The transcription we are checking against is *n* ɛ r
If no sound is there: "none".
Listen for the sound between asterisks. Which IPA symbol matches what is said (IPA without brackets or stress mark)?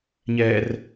ɲ